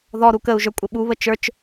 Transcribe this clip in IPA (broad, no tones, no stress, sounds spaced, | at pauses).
ð ɔ ɾ u k ə u̯ ʒ ə˞ kʷʼ ɘ ɓ u β ə t͡ʃ ə˞ t͡ʃ